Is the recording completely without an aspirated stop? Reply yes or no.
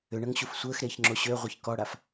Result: yes